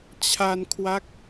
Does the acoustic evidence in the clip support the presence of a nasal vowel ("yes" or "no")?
no